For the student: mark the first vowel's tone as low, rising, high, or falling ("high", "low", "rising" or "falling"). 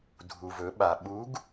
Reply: low